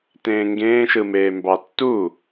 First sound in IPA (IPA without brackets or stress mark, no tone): t